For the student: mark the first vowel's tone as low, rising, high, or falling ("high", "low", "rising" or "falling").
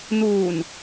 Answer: low